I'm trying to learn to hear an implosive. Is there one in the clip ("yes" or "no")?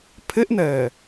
no